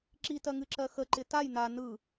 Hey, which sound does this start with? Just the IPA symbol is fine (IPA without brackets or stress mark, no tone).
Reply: ǁ